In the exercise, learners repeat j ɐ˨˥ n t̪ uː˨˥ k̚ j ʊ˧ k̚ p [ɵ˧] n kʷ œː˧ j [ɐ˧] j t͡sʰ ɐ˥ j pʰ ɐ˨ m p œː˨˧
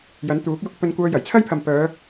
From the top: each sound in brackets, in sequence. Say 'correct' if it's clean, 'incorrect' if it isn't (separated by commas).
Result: correct, incorrect